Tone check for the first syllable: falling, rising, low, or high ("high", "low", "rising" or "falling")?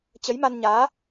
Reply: rising